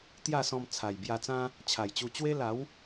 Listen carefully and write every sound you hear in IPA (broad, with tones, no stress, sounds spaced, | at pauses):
t̪ j a˥˧ s ɔ̃˧ m t͡sʰ a˨˩ j b j a˧ t͡s ã˦ | t͡ɕʰ a˨˩ j t͡ɕ u˧ t͡ɕ w e˦ l a˨˦ w